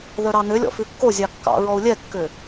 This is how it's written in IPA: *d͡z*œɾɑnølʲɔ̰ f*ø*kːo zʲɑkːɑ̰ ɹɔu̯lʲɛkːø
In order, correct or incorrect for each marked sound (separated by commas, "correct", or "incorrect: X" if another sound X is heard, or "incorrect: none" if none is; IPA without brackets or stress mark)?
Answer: incorrect: ð, incorrect: ʉ